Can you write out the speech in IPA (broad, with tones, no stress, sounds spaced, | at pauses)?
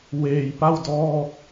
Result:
w eː˧ j p a˥˩ w d ɔː˥˩ k̚